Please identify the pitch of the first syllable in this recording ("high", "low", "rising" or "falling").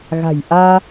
low